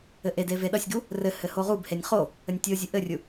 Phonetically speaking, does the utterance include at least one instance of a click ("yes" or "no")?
no